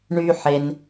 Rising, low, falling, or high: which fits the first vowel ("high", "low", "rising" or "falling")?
high